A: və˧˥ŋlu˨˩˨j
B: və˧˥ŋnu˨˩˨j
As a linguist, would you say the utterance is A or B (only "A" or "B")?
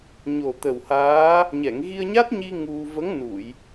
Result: B